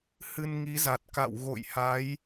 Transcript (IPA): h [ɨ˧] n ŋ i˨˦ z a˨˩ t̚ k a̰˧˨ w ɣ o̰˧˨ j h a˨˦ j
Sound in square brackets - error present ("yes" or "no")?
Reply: no